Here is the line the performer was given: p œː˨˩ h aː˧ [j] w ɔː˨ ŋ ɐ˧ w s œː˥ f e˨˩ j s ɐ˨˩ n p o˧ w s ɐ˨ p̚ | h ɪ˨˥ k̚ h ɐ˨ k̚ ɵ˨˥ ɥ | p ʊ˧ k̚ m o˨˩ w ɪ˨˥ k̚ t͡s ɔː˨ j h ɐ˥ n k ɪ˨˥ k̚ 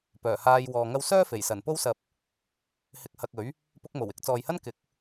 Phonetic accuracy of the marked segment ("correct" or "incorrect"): correct